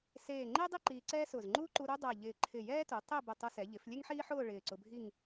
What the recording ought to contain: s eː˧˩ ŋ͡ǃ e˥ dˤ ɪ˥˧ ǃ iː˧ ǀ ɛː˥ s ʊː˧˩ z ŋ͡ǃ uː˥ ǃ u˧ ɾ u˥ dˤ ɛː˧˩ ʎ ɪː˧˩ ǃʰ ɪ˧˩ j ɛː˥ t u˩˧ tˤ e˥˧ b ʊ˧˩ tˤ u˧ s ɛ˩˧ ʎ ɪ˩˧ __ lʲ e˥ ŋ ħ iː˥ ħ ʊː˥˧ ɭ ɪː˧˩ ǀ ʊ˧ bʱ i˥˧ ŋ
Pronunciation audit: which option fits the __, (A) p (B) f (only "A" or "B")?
B